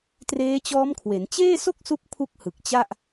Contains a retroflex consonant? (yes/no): no